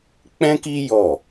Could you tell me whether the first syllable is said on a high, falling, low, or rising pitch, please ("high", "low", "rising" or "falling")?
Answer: high